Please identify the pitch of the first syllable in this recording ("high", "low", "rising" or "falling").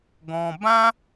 high